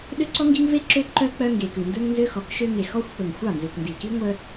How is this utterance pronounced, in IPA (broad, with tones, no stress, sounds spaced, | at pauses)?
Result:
ɗ ø˦ ǀ ɔ˦ ŋ ɡ i˦ ŋ v e˦ ǁ ø˦ ǃ œ˦ k͡p œ˦ ŋ ɡ e˨ k ʉ˨ n d ɵ˦ ŋ n z ø˦ x ɔ˨˦ k ʃ ø˦ ŋ e˨ x ɔ˦ xʷ k͡p ɵ˨ ŋ xʷ ɑ˦˨ n z ʉ˨ k n d i˨ k i˦ ŋʷ œ˦